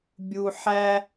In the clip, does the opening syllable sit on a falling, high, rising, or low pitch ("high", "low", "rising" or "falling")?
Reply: low